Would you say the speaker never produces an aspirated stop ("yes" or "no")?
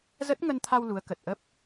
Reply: no